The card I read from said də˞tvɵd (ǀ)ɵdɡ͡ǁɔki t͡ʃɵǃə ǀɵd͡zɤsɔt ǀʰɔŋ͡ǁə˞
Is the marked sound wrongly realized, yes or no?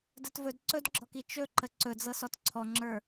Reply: no